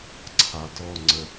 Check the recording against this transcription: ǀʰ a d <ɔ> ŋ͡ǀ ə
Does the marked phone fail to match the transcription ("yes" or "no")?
no